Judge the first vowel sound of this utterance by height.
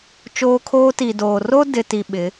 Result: mid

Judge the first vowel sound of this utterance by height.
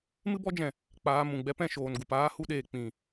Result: high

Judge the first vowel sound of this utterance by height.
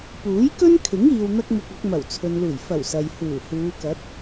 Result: high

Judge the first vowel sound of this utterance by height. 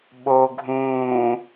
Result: mid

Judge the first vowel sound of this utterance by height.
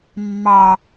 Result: low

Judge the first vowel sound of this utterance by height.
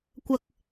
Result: low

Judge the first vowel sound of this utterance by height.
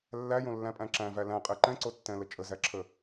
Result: low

